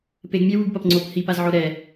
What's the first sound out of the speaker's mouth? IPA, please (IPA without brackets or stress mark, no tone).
p